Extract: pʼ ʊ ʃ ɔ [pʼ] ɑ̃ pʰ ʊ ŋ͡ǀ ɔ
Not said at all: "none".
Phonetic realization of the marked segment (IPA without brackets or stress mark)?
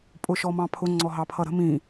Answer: m